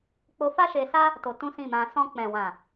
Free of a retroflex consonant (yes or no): yes